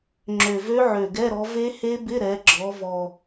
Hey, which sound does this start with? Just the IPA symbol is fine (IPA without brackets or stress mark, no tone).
ŋ͡ǁ